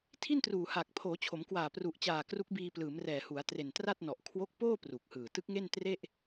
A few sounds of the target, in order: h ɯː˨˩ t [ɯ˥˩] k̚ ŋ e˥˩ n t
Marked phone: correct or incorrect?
incorrect